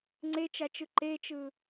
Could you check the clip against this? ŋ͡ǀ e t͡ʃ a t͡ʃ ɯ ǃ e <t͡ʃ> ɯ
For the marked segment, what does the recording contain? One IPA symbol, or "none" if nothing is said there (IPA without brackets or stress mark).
t͡ʃ